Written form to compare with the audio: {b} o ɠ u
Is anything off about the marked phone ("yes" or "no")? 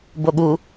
no